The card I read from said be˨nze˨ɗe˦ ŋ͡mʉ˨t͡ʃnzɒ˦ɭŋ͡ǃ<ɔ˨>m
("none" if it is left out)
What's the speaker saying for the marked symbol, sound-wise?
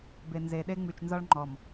ɔ˨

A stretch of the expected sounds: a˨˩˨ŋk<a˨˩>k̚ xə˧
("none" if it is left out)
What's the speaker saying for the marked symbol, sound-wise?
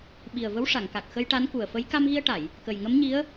a˨˩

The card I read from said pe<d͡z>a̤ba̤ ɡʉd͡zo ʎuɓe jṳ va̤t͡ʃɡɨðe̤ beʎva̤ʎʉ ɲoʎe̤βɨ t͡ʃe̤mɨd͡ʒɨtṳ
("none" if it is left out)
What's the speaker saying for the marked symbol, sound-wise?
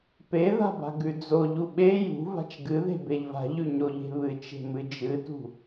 ð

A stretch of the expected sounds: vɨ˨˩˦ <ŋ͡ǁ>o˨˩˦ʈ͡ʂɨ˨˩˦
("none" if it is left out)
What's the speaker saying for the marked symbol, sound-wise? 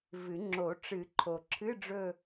ŋ͡ǁ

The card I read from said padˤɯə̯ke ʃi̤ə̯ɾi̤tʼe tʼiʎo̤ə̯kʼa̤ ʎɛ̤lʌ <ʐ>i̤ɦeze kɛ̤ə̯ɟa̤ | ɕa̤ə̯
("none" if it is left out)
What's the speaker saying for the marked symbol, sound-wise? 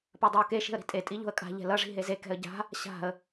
ʐ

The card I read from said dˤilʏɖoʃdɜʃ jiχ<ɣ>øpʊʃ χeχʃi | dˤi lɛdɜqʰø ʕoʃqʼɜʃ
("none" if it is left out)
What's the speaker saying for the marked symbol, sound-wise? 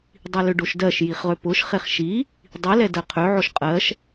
ʁ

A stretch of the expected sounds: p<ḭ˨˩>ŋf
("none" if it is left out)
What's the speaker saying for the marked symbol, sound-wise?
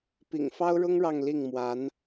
ḭ˨˩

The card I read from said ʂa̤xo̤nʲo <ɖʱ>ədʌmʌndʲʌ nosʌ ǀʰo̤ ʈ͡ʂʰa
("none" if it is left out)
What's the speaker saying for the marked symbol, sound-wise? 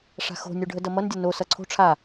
ɖʱ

